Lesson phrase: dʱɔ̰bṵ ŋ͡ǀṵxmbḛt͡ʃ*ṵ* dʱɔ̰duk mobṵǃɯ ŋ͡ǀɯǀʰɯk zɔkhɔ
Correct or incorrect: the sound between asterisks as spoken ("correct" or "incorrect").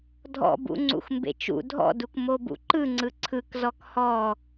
correct